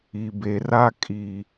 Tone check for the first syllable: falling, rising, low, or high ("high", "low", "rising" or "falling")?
low